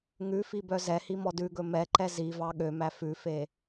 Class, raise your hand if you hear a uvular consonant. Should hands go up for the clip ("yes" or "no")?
no